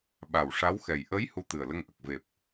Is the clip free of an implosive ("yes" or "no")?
no